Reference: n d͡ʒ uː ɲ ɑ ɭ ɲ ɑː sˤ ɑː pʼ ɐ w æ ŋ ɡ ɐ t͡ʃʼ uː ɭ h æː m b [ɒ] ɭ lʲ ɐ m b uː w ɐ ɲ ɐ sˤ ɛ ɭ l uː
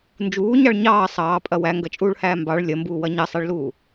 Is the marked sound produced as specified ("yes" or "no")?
no